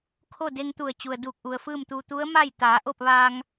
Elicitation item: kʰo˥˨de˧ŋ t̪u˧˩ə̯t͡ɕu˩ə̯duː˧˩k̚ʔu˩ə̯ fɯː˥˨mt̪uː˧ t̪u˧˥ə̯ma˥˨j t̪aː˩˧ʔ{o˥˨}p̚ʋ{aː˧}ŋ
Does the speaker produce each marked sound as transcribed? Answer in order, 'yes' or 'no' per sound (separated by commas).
yes, yes